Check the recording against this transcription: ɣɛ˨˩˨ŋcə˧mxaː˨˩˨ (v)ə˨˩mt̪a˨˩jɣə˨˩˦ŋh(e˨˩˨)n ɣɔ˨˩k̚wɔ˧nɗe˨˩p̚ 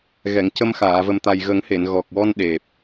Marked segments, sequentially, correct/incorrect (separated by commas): correct, correct